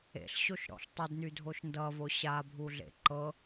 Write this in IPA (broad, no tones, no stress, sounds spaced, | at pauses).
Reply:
ḛ ɬ ɕ o ʃ ɾ ɔ̰ ɬ tˤ ə d n y dʱ o ʃ n d ʌ v o ɕ a bʱ u ɮ ḛ ǃ ɤ